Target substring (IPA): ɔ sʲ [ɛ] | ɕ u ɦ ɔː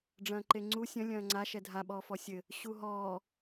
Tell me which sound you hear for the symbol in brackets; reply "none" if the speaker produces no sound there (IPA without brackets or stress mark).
ɘ